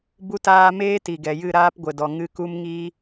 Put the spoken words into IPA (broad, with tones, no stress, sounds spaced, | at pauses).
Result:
b u˦ t aː˦ m eː˦ t i˨ ɡ ɛ˨ j ɨ˦˨ ɾ aː˦ p ɡʷ ə˨ d ɔ˨ ŋ ɨ˦ k u˦ m ŋ iː˦